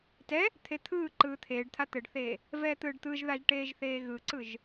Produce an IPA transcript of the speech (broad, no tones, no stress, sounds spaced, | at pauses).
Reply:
t ɛ | t̪ʰ e t̪ʰ ɯː ǃ ɯː t̪ʰ eː ɖ t̪ʰ a t̪ ɘ ɖ θ eː | v ɛː t̪ ɯː ɖ t̪ ɯ ʒ ð a ʒ ʈ eː ʒ θ eː ɣ ɯ ǀ ɯ ʒ